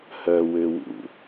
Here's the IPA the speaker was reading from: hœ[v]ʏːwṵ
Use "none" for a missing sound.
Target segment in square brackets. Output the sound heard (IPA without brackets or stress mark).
w